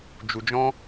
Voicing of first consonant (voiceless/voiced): voiced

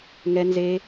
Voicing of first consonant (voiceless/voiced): voiced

